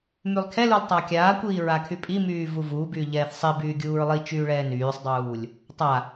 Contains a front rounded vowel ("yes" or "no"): yes